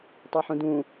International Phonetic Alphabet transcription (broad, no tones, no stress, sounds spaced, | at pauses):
tˤ ɤ ħ ũ d ũ